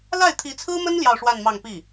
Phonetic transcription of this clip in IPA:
la˥˩ɪ̯ t̪ʰi˧˥t͡sʰɹ̩˥mə˥n ljɑ˥˧ʊ̯ʂwa˥˧nmɑ˥˧ŋpi˥˩

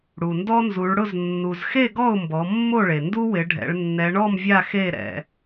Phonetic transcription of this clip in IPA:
ɽu˩ndɔ˦nzu˩˧ɭɽʊ˥˨z nːu˩zxe˥˨ ɡɔ˥˨ʊ̯mbɔ˩˧ mːo˥˨ɭe˩ ndu˦wɪ˩˧ ɖʱɛ̰˩˧ɭ nːɛ˩˧ɳɔ˥˨m vʲa˥˨xe˥˨ɾɛ̰˩˧

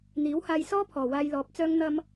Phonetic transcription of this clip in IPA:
n̪iː˨˥whaː˧jsɔː˥ pʰɔː˨˩waː˧jlɔː˨p̚t͡sœː˥ŋ n̪ɐ˧m

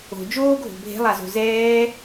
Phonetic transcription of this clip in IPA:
o̤ d͡ʒoːɡʱo̤ bʱe̤lˠazo̤ zɛː

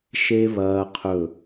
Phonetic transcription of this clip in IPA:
ʃe˦ βɐː˦qʰɵ˦˨

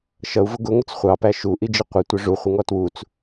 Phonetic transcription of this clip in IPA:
ʃʌu̯vʊ ɡʊŋʊt͡s χʷɑpæ ʃuʔid͡ʒɪ qʷətʷɪ ʐuχʷɪŋɔ twut͡s

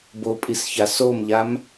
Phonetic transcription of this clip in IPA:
bopʼisça somʎam

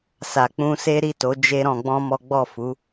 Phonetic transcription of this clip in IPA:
sa˨k͡pũ˧ se˦ ɾi˦˨to˨˦ d͡ʒe˦ɾɔ̃˧ɡ͡bɔ̃˦ mɔ˦ ɡ͡bɔ˦˨fu˨˦

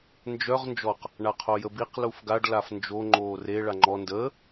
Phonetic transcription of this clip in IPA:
nd͡ʒœʁ nd͡ʒɔq | ɳaqʰojəbiq lufɡaɖ lafnd͡ʒo ŋ͡ǃoːre ɭaŋ͡ǃɔ ndəː

